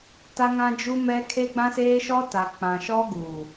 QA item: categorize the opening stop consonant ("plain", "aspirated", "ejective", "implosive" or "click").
plain